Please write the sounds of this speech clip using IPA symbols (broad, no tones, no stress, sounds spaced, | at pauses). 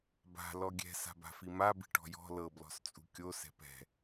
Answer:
b a̤ l ɔ ɡʲ ɛ̤ s a̤ b a̤ f i m a b i̤ ʈ ɔ̤ j ɔ̤ l ɤ b l ɔ̤ s t͡sʼ ṳ kʲ o s ɛ̤ p ɛ̤